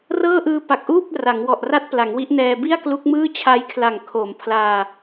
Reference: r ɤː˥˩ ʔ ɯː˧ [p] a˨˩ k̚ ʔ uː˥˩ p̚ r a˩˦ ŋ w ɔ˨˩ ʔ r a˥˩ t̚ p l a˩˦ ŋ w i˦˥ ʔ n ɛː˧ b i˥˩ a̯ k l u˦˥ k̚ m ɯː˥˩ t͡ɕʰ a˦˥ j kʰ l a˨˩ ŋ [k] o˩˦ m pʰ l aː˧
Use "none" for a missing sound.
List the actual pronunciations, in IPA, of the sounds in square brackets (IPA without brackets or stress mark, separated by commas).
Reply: p, kʰ